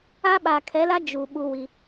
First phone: a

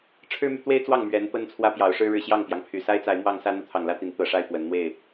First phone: ʈ͡ʂʰ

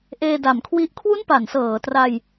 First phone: ʔ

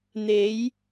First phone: n̪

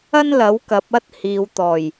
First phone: ɐ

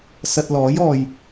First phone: s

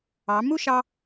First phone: ɑ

